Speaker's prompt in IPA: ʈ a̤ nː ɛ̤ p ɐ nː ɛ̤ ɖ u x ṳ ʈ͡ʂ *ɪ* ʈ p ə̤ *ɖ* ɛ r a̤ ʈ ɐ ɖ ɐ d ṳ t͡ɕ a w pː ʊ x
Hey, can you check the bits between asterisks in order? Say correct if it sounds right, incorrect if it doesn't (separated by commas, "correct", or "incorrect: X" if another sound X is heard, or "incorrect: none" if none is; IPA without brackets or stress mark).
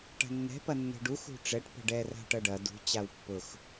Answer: incorrect: ɛ, correct